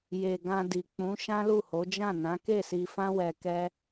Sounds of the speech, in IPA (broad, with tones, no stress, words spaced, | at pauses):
je˨ɡã˧di˨ k͡pũ˨˦ ʃã˦lu˦˨ho˨˦ d͡ʒã˦˨nã˨˦ ke˦˨si˧fã˦wɛ˧ kɛ˦